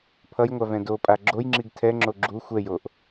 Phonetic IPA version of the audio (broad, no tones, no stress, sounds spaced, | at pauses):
pʰ ʌ j ŋʷ a v ɛ̃ d o pʼ a ɡ͡ǁ o j ŋ͡ǁ i ɡ tʰ ɛ ŋ͡ǁ o ɡ͡ǁ u xʷ ɛ j o ʔ